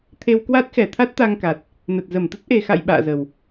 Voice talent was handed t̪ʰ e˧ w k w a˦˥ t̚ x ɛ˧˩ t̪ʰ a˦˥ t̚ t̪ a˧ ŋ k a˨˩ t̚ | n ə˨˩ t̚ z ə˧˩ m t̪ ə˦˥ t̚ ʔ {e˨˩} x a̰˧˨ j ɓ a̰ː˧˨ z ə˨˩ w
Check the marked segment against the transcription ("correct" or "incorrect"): correct